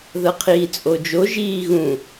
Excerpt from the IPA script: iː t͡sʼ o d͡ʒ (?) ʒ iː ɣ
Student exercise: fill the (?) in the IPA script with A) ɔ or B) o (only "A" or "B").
B